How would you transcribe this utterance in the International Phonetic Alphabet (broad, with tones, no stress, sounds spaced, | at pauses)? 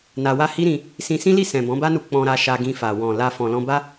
n a˧ w a˦ h i˦ ɾ ĩ˧ | s ĩ˧ s ĩ˦ l i˦˨ s ɛ̃˨ b ɔ̃˨˦ b a˦ n u˧ k͡p ɔ̃˧ ɾ a˧ ʃ a˧ ɡ ĩ˧ f a˨ w ɔ̃˨ l a˧ f ɔ̃˨ l ɔ̃˧ b a˦